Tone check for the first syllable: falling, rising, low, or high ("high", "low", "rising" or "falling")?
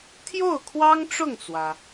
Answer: falling